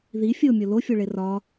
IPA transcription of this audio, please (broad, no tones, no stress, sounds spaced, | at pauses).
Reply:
ð i fʲ o mʲ o l o fʲ o ɭ e r ɒ